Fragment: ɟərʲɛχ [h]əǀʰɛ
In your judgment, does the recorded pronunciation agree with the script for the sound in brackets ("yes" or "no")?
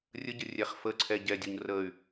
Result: no